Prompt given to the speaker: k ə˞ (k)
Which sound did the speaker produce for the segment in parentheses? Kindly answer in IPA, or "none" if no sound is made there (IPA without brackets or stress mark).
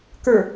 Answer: none